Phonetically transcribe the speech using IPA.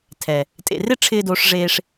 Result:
tʰɛ˨ | tʼḛ˨rɪ˦ ʈ͡ʂʰɪː˧ doː˧ʂ ʐeː˧ʂ

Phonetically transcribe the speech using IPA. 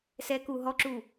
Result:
sɛku ɦɔǁu

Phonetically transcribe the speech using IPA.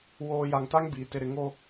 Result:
woː˨ ja˨ŋta˦ŋ biː˨ tɪ˨ɾɪ˨ ŋo˦

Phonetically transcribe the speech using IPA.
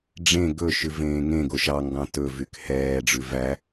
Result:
ɖ͡ʐẽ ɡɵʃʉ vẽːŋẽɡo ʃɑŋɡɑ̃ tɵvyk hɛːɖ͡ʐʉ væ

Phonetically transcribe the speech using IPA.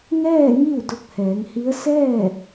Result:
ŋɛː˥˨ŋi˥˨w do˧k̚hɛː˩˧ŋhi˧˥ə̯ sɛː˥˨

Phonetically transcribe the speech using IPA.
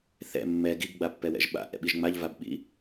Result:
θɛ̰ mːɛ ɡiɡɡ͡bapːɛwɛ̰ʒ ɓa̰ʔɛ̰ɓiʒ ŋ͡maʎvabɓḭ

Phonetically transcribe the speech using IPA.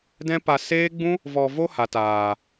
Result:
dɛ̃˦pa˧ seː˦ɡ͡bũ˦ | vɔ˧vo˦ ha˨taː˨

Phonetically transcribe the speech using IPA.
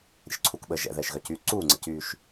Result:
ɾʲə̰ʃǀʰukɓəː ʒɛ̰ðɛːʃɣœcyː ǀuːŋ͡ǀə̰cyːʃ

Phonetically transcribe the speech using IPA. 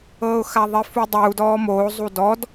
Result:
ɤːʊ̯xaðˤi fudˤu dɔːmoː zˤudɔd

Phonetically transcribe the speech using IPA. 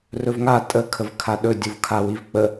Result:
rɵvŋa tʼə kʰəvkʰaɗɵ dʲuvkʰawivk͡pə

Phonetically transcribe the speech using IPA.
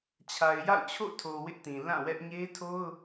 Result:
t͡ɕʰa˨ɪ̯ja̰˦˨ʊ̯t͡ɕʰo̰˦˨tʰo˨ wɪ˦ʔtĩ˨ lã˦˨wɛ˦ʔ ɲe˦tʰo˦ʊ̯

